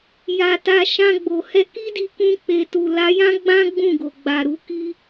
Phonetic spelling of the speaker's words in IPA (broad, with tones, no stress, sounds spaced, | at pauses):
j a˨ t a˧ ʃ ã˧ ɡ͡b o˨ h ɛ˧ k i˦ d i˧ k ũ˧ k͡p e˨ t u˨ l a˨˦ j ã˦ ɡ͡b ã˦ ɡ͡b ũ˦˨ ɡ o˨ ɡ͡b a˨ ɾ u˨˦ k i˦